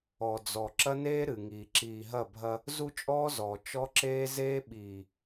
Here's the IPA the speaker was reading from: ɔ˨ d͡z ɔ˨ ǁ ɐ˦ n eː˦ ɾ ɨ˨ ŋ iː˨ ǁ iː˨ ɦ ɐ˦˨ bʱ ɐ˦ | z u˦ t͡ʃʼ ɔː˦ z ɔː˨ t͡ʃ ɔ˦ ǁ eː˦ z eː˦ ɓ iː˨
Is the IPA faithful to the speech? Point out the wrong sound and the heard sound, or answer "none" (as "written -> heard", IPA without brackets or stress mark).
none